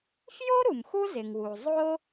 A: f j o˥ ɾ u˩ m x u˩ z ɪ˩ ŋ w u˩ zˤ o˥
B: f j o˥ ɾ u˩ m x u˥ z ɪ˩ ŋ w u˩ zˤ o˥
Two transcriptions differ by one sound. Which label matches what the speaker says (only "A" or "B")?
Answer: B